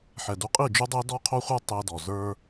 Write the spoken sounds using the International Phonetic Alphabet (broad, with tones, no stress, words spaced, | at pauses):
ħɛ˨du˧ qʼi˦˨d͡ʒu˦dˤɛ˦ dɔ˦qʰo˦χʷə˞˦ tˤɛ˧dɔ˨ zə˞˦